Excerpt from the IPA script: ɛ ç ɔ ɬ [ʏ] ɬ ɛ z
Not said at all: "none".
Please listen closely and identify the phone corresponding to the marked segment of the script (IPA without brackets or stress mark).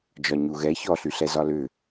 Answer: y